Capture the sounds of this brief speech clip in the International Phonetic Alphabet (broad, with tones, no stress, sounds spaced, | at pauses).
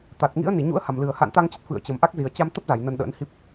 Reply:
t̪ a˨˩ t̚ ŋ ḭ˧˥ ə̯ n i˧˩ ɲ ṵ˧˥ ə̯ h a˨˩ m l ɨ˨˩ ə̯ h a̰˧˨ n t̪ a˧ ŋ t͡ɕ ə˦˥ t̚ f ɨ̰˧˨ ə̯ t͡ɕ ə˨˩ m ʔ a˦˥ k̚ z i˨˩ ə̯ t͡ɕ a˧ m t̪ ə˦˥ p̚ z a˧˩ j n ə˧ n ɗ ə̰ː˧˥ n h i˦˥ p̚